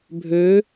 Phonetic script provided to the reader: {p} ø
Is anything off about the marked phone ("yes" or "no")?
yes